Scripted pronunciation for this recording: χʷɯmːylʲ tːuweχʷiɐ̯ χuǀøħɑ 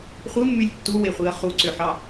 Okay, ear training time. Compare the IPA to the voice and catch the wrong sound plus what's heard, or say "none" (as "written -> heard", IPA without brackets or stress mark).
none